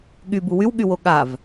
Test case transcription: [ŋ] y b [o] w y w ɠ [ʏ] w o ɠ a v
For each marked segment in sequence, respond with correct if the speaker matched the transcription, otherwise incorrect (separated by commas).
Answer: incorrect, incorrect, incorrect